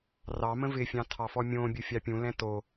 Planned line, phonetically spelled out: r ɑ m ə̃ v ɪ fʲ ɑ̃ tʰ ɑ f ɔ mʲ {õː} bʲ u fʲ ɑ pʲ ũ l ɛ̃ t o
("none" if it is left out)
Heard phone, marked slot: õː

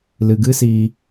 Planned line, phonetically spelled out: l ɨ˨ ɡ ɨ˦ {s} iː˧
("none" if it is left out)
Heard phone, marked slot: s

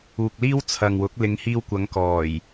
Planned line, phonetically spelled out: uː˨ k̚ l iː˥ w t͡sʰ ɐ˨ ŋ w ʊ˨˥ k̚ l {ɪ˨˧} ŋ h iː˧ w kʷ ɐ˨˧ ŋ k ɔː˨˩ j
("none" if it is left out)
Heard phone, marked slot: ɪ˨˧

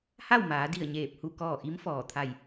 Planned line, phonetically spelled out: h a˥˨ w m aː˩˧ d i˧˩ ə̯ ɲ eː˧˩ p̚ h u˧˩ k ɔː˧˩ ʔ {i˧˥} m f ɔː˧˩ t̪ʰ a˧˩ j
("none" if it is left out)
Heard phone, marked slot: i˧˥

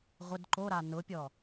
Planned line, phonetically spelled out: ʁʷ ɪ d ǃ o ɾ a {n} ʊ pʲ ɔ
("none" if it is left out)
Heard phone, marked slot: n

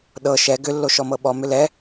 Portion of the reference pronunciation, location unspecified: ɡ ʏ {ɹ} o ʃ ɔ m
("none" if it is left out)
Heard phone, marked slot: lː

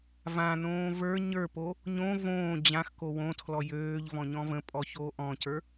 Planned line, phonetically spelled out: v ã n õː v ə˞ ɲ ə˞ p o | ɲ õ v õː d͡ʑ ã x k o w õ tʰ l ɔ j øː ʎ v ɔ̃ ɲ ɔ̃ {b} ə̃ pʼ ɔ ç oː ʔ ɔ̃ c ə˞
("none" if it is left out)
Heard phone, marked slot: v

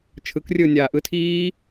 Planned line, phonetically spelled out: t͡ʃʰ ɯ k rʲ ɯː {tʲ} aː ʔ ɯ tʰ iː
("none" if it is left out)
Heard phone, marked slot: nʲ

